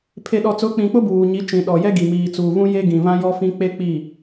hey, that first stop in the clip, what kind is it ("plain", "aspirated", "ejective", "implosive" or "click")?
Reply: aspirated